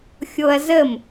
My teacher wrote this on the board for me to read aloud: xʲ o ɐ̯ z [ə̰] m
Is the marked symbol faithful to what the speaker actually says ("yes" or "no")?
no